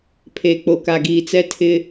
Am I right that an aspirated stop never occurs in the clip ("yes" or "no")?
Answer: no